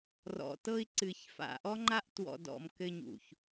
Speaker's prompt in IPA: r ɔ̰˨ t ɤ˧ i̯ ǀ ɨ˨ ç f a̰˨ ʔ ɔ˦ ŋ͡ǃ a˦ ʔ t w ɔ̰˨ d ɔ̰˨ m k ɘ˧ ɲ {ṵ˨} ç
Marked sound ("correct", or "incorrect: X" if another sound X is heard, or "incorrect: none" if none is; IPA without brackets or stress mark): correct